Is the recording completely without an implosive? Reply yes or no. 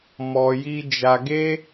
yes